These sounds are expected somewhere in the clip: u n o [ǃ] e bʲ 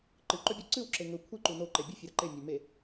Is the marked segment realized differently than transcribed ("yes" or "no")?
no